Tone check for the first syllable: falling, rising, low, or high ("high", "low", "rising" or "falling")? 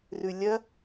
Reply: low